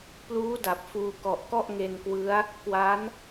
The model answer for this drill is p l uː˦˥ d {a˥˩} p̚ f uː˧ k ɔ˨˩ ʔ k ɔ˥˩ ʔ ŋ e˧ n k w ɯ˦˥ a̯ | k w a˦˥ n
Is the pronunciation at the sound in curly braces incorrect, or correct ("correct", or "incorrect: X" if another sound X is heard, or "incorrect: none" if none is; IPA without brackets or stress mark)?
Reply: incorrect: a˨˩